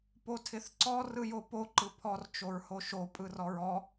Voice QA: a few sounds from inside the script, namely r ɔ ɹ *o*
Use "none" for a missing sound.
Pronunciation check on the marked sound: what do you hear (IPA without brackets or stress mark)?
ɔ